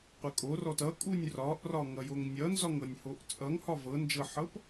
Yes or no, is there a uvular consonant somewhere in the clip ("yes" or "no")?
yes